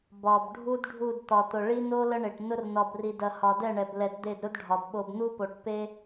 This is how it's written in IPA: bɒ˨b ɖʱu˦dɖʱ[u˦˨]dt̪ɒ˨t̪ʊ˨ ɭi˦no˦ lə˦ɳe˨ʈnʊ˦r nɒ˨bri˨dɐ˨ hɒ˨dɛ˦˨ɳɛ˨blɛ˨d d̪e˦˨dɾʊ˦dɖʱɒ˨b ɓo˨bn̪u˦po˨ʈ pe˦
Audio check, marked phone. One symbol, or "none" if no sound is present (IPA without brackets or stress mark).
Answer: u˦˨